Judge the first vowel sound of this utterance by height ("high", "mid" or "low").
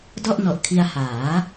mid